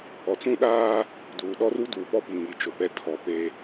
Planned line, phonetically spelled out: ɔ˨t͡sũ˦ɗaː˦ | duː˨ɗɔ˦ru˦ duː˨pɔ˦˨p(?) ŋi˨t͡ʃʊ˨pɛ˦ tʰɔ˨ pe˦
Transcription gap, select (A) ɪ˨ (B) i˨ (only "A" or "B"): B